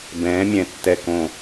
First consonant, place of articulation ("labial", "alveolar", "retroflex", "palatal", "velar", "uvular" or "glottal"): labial